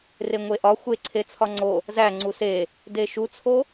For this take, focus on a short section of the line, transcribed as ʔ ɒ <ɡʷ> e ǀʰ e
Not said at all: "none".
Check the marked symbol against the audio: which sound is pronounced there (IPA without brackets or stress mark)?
xʷ